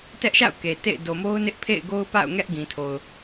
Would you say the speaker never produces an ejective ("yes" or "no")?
yes